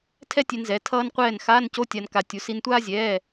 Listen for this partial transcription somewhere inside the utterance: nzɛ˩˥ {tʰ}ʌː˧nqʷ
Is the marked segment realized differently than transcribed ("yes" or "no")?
no